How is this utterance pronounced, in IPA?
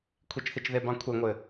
kʷʰit͡ʃθit͡ʃðebɑ̃ kʷʰeŋʷɘ

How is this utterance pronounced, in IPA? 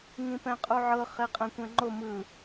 ŋĩpɛ̃qʼuʕɤ χeqʼɛ̃kʷɛ̃ŋ͡ǃo mɯ

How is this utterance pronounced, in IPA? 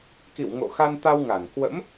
kḭ˧˨wŋo̰˧˨xa˧nt̪a˧w ŋa˧˩n kwə̰˧˥m

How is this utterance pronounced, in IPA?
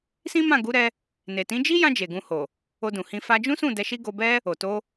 sĩ˦mã˦˨ɡu˨˦ɾɛ˧ | ne˨tĩ˨˦d͡ʒi˦jã˧ d͡ʒe˨ɡũ˧ho˨ | o˧dũ˨hĩ˧ fa˧d͡ʒũ˦sũ˦˨ dɛ˧ʃi˦ɡo˧bɛ˦ | o˨ to˧

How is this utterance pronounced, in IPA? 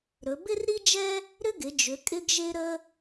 ɾɵ˩˧bɪ˥rɾi˥d͡ʒɛ˥ | ɾʏ˥ɡɪ˩˧d͡ʒʏ˩˧ kʼɪ˥ɡʒe˥ɾə˥

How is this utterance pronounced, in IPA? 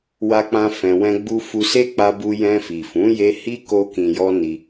wa˦k͡pã˦ fɛ̃˧wɛ̃˦ɡ͡bu˦ fu˧se˦k͡pa˧bu˧ jɛ̃˧fi˨fũ˨˦ je˦ hi˦ ko˧ kĩ˨jɔ˧ ni˧

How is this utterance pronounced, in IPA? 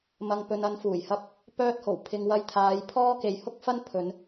mɐ˨ŋpɵ˨n ɐ˨˧nfuː˨˩jhɐ˧p̚ | pœː˧t̚ho˨˩w pʰɪ˨ŋ wɐ˧jt̪ʰaː˨˧j pʰɔː˥ke˧jhʊ˥k̚fɐ˥n pʰɵ˨˧n

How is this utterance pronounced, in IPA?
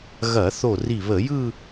ɣɐ˧˩˧θo˧˩ri˧˩ βə˧˩˧jɯ˥˧

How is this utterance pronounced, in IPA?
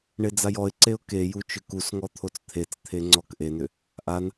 ɳed͡zajɔɪ̯ǀeʊ̯ keju t͡ʃʏkusŋɔ t̪ʰot͡st̪ʰet͡st̪ʰe ŋ͡ǀɔkʔenʏ | ʔan

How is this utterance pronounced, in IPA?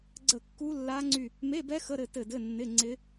ɡ͡ǀə˦˨kːu˦˥lːa˦˥ŋ͡ǀy˦˨ | me˧˥˧bɛ˦˥ xə˧˥˧ɾɘ˦˨ tɘ˦˨dɘ˧˥˧nːɪ˧˥˧ŋ͡ǀɪ˦˥

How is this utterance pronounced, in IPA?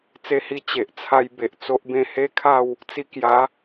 t͡se˧hi˧ t͡ɕe˨ʔt͡sʰa˧jbe˨ʔ t͡so˦ʔbẽ˥˧ he˦kʰa˥˧w | t͡si˧kja˨˦

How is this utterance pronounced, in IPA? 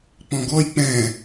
k͡pɔ̃ɡɔj k͡pɛ̃

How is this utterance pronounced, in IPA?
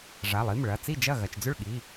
ʐa˩˧˩lˠi˩˧˩m ɭɐ˩˧˩ t͡si˥˩d͡ʒɐ˥˩ ɣɐ˩˧˩t͡ʃd͡zʏ˥˩ɭɠi˩˧˩

